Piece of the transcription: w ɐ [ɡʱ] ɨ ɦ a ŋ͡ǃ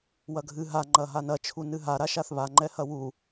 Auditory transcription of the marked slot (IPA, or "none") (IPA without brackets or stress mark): ɡʱ